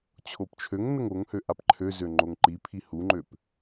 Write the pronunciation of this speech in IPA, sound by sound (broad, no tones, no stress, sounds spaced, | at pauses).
t͡ɕʰ o p t͡ʃʰ ø ŋ n ə ŋ o ŋ h ø ʔ a p ǃʰ ø z ø ŋ͡ǃ o ŋ ǃ i pʰ i h u ŋ͡ǃ ø p